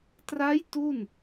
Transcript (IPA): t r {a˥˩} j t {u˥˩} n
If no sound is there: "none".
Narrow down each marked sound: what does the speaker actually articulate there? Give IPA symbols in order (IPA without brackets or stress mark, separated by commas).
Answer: a˦˥, u˥˩